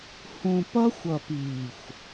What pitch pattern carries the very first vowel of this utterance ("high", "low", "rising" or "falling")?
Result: low